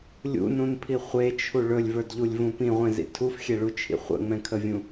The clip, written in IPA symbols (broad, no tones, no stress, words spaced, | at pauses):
lʲṵnũnpʰi χʷet͡ʃʰu ɭɵlʲvə˞dʎulʲvũ pĩʁʷẽzḭ tʰufxʲeɭut͡ʃʰḭ χʷə̰ŋ͡mɛ̃kʰəvʲũ